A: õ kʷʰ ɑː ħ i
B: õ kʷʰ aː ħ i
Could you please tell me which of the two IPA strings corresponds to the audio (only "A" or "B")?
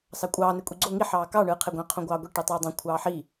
A